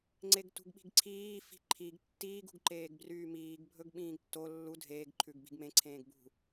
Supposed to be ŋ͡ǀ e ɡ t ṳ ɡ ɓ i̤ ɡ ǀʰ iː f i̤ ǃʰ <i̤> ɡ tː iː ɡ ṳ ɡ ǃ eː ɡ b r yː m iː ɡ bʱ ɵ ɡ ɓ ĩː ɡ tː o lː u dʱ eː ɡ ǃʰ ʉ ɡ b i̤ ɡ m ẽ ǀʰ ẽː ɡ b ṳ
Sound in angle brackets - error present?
yes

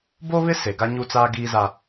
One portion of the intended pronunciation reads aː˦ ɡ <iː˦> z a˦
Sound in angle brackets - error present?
no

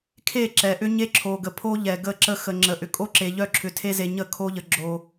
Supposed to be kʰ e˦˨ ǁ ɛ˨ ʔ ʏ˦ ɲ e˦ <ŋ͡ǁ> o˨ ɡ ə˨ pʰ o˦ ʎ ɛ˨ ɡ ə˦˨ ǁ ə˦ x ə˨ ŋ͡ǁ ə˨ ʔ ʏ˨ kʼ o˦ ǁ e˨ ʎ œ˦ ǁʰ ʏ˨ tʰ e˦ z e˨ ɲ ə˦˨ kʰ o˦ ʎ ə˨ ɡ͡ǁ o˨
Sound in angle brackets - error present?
yes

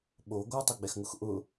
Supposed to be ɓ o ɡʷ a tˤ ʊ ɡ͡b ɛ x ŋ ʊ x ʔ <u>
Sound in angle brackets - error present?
yes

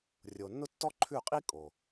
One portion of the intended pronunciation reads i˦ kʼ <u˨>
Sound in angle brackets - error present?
yes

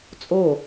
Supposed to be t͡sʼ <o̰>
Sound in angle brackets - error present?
yes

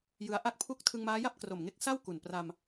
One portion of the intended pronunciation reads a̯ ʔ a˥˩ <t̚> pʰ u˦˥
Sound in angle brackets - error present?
yes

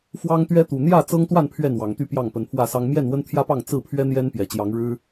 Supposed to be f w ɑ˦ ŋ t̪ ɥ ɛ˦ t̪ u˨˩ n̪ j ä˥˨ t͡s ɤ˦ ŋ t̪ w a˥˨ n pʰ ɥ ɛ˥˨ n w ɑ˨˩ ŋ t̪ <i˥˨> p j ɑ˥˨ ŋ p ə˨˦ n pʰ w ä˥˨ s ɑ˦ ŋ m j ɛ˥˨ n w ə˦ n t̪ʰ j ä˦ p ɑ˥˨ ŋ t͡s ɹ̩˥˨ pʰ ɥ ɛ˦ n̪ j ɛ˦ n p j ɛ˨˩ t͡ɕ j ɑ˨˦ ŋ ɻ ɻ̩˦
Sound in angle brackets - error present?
yes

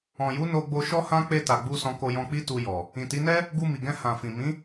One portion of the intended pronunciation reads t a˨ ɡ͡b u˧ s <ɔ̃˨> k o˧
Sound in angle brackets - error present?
yes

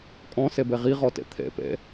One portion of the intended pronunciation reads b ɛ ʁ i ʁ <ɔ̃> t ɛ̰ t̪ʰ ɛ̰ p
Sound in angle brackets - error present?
yes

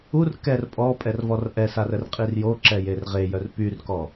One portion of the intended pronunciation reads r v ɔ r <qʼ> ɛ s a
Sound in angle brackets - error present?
yes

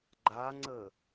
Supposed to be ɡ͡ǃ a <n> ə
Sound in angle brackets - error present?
yes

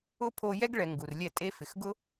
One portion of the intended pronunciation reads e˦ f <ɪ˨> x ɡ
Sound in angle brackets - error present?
no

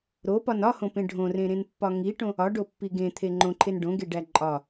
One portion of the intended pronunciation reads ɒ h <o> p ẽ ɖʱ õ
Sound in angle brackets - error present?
yes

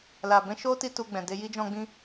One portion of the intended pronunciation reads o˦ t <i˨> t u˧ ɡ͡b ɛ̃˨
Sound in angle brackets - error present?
yes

